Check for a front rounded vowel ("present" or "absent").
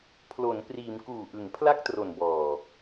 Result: absent